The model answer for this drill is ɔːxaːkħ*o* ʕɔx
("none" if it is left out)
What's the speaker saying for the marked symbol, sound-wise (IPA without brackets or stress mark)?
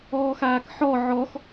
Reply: ɔ